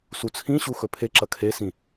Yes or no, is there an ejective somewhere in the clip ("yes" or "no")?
no